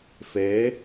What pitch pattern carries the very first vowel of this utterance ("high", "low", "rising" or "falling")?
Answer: rising